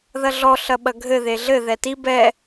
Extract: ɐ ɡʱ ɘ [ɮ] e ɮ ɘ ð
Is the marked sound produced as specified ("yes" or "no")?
no